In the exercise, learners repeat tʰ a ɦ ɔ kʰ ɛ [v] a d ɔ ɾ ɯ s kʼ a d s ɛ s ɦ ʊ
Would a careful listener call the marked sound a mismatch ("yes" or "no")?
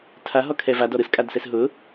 no